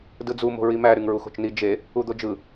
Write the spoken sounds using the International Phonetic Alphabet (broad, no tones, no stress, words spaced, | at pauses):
dɯd͡zu mo̤ɹimæ ɾyŋɹuxo̤t͡ʃni d͡ʒe | ud̪od͡ʒɯ